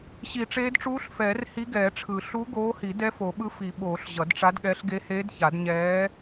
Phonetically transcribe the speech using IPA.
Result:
ɕ i˨˩˦ ʈ͡ʂ eː˧˥ d ʈ͡ʂ uː˧˥ ɬ f ɛː˨˩˦ r h i˧˥ ɡ ɛː˨˩˦ ʈ͡ʂʰ ɯ˨˩˦ ɬ u˧˥ ɡ oː˧˥ h i˨˩˦ d ɛ˧˥ f o˨˩˦ ɓ ɯ˧˥ f i˨˩˦ ɓ oː˨˩˦ ɬ ʑ ʌ˨˩˦ d ʈ͡ʂ a˧˥ d ɠ ɛ˧˥ ɬ ɡ e˧˥ h eː˧˥ d ç a˨˩˦ d ɲ ɛː˧˥

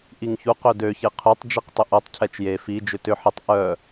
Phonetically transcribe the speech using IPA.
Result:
ʔ i ŋ ç u q ø d ø ç e qʰ y tˤ d͡ʒ i q tˤ ʏ ʔ o tˤ cʰ ɛ t͡ʃ j e f i d͡ʒ ʏ t ʏ ħ ɪ tˤ ʔ œ

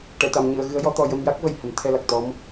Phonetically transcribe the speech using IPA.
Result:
ʈ ɛ˨˩˨ t̪ a˨˩˨ m ɲ ɨ˨˩˨ ə̯ ɣ ɨ˧˥ ə̯ j ɔ˧˥ t̪ ɔ˧ j ə˧ m j a˦˥ k̚ v ə˨˩ j h ə˨˩˦ m t̪ʰ ɛ˧ l a˨˩ k̚ t̪ ɔ˧˥ m

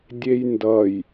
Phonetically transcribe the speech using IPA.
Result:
dʲ e j n d ʌ j

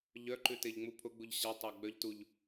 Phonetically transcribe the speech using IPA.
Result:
ʎ œ ǃ ʉ t e ʎ ŋ͡m u pʰ ʊ ɡ͡b u ʎ ɕ a tˤ a ɡ͡b œ ʎ t u ʎ

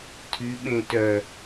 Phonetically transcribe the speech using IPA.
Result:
tʰ y ɓ ẽ t œ

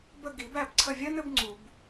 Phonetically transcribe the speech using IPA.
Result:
b ə˦˨ ɡ i˨˩˦ b æ˦˨ b ǀʰ ə˦˨ vʲ ɜ˥ n ɘ˨˩˦ b ŋ͡ǀ u˨˩˦ b

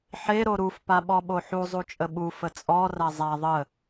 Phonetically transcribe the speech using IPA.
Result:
ħ e ɾ o ɾ u f p a ɓ ɔ ɓ o ħ u zˤ u t͡ʃʼ ə ɓ u f ə t͡sʼ ɔ r a zˤ a ðˤ ə

